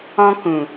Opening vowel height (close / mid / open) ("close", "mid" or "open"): mid